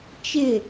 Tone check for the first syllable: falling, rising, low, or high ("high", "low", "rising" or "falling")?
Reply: falling